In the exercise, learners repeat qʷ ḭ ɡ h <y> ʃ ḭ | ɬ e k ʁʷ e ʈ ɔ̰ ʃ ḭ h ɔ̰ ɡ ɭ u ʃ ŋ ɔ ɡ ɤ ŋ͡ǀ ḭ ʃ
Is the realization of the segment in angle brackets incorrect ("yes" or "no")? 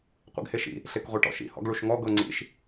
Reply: yes